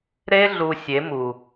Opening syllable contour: high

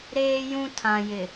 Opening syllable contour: high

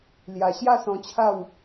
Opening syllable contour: low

